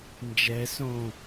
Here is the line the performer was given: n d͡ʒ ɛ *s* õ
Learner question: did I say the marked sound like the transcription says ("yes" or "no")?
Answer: yes